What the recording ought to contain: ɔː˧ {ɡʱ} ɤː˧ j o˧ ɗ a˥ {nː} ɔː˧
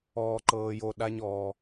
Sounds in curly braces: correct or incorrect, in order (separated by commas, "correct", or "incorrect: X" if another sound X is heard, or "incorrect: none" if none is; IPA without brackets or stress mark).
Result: incorrect: ǃ, incorrect: ɲ